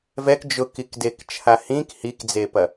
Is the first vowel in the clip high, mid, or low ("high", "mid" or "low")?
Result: mid